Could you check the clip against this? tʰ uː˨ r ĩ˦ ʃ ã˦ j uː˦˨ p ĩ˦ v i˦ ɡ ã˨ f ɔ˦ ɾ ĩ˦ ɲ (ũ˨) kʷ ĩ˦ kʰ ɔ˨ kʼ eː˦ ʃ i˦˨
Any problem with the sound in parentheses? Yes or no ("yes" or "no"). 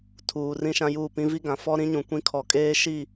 no